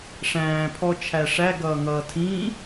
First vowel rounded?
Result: no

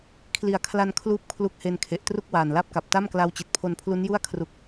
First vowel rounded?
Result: no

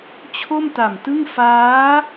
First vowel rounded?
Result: yes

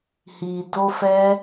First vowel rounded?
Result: no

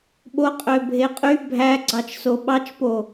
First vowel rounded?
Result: yes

